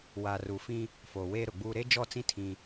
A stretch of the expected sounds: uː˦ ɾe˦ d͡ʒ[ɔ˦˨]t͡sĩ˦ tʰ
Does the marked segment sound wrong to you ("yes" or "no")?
no